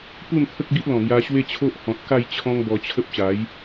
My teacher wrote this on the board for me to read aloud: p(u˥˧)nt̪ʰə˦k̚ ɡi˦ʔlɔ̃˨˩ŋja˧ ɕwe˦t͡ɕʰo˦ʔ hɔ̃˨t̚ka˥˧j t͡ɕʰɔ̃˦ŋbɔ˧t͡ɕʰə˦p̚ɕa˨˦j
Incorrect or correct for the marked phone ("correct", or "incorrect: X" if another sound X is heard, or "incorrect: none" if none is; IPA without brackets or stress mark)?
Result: correct